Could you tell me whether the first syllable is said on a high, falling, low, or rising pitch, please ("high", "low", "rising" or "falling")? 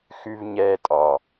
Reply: low